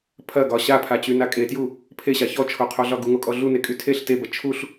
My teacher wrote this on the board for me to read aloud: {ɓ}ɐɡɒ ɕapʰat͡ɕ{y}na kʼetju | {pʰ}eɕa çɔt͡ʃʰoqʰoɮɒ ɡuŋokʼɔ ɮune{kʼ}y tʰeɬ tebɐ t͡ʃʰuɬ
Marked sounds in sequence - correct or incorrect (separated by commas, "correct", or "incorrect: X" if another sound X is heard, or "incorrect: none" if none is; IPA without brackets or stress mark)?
incorrect: pʰ, correct, correct, correct